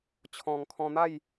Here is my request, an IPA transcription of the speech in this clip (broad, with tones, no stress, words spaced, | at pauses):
t͡ɕʰɔ̃˨˩ŋ kʰɔ̃˧n̪a˥˧j